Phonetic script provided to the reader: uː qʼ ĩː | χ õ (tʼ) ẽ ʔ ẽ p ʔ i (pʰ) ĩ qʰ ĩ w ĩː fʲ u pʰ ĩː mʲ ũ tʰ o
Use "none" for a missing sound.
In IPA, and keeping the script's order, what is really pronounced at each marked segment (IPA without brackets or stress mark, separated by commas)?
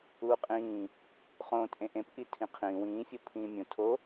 tʼ, tʰ